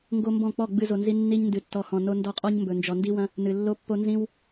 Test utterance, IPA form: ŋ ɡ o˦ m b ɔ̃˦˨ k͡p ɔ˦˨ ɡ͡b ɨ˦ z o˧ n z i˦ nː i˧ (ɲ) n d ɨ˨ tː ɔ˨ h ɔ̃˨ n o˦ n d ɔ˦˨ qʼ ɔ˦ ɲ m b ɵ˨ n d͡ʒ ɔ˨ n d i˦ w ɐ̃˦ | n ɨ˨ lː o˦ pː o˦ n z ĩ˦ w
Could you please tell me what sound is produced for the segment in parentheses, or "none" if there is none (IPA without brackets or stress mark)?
ɲ